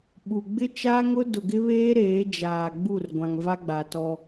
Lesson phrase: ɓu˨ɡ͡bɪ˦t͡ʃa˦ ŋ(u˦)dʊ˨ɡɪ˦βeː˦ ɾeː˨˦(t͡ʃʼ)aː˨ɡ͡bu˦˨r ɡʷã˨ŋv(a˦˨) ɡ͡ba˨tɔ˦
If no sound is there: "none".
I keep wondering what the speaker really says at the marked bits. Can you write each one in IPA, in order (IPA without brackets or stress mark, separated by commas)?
ʊ˦, d͡ʒ, a˦